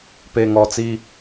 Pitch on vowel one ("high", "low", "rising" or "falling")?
low